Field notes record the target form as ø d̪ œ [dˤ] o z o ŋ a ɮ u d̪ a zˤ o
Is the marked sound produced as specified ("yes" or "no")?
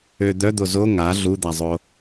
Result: no